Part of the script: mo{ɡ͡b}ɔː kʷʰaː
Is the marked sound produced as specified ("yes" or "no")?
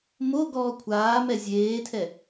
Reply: no